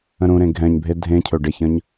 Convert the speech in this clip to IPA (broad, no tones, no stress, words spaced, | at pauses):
ə̃ɾũɾẽ ɡʱɛ̃ɲbʱe dʱẽcʰɵ ɖeçə̃ɲ